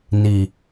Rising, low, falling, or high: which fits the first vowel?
low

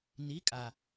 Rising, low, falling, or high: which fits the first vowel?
rising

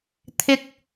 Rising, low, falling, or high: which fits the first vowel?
low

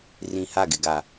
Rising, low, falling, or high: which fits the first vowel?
low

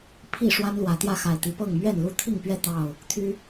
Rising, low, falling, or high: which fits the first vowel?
falling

